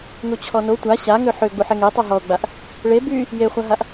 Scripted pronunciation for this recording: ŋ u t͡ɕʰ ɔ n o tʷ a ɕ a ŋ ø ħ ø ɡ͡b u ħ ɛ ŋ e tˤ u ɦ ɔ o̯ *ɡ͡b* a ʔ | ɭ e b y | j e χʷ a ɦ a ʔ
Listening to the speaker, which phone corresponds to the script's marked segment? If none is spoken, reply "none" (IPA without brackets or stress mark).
ɡ͡b